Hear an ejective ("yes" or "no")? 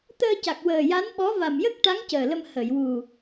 no